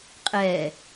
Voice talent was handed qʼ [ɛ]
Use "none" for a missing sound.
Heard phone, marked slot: ɛ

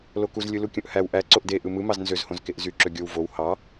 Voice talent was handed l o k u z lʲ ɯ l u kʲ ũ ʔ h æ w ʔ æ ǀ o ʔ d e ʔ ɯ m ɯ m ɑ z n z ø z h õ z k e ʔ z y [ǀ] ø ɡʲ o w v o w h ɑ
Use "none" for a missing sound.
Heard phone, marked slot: ǁ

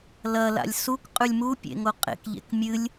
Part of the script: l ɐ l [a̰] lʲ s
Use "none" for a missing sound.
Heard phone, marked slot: a̰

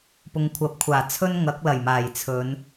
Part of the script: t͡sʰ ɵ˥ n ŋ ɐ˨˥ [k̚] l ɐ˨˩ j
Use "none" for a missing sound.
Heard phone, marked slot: k̚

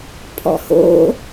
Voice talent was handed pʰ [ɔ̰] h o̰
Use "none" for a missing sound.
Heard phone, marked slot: ɔ̰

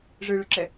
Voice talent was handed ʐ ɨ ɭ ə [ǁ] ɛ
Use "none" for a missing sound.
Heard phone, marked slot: ǁ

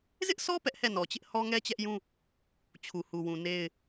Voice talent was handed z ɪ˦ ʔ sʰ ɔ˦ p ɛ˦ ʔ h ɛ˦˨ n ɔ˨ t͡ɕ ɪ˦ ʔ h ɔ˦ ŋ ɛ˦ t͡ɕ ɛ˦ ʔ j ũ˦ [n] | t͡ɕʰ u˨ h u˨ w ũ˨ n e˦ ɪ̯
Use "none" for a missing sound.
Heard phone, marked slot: none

